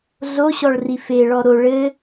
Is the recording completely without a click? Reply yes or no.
yes